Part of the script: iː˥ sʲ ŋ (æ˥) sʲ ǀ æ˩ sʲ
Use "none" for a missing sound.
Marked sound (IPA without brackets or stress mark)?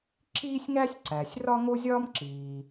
æ˥